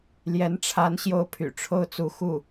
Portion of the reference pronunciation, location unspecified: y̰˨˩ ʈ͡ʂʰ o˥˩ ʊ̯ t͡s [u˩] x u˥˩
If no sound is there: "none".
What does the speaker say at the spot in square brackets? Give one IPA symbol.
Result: u˧˥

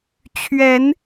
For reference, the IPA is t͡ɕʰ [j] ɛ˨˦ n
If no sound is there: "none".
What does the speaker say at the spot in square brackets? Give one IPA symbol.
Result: ɥ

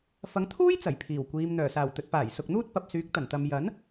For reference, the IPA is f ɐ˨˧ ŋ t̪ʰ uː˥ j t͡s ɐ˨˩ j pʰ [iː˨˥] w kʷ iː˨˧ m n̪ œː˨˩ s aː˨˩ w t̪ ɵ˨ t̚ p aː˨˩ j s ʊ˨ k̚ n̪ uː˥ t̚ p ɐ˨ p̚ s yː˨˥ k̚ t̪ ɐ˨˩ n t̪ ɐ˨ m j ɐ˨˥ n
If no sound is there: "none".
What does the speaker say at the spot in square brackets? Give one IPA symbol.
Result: iː˨˩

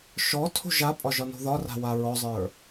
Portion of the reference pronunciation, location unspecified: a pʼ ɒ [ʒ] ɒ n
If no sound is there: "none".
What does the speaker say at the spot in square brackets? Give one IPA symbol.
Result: ʒ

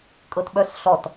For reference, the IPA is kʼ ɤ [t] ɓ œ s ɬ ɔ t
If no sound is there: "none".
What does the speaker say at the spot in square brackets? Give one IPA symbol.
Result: t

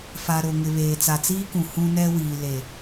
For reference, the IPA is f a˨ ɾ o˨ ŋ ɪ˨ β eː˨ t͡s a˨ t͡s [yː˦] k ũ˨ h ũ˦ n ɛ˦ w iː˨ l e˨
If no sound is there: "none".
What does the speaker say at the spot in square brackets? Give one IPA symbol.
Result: iː˦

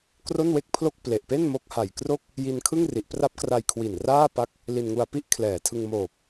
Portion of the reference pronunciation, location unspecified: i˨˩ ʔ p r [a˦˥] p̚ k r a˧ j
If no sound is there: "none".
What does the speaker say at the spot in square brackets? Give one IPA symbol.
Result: a˦˥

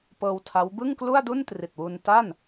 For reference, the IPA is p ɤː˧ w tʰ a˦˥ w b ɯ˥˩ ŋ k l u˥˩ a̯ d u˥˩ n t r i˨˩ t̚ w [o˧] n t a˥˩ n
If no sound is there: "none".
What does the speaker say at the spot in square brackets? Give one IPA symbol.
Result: u˧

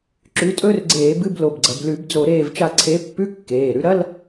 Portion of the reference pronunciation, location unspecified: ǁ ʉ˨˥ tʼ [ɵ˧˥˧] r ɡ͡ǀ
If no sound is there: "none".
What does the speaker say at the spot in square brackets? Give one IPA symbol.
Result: ɵ˧˥˧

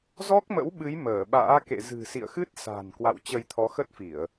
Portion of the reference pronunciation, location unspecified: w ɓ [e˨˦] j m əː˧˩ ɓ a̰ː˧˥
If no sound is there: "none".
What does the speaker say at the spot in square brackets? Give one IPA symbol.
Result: ɨ˨˦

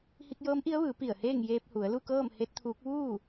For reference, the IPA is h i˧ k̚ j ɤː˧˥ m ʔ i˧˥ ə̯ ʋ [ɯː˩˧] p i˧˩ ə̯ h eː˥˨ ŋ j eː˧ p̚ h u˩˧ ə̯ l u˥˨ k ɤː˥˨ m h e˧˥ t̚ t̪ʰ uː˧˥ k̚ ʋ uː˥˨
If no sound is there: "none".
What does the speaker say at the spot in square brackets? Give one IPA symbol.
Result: ɯː˩˧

